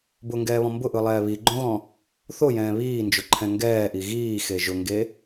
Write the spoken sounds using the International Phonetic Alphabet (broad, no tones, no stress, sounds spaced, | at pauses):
b ʊ ŋ ɡ ɛː β ɔ̃ m b ʊ ʔ ɯ lˠ ɛː β i ɡ͡ǃ õ ɣ ɔ̃ | θ o j ɛ̃ː β iː n d͡ʒ ʊ ǃʰ ɛ̃ ŋ ɡ ɛː ʔ i ɣ iː x e ʒ ʊ ŋ ɡ e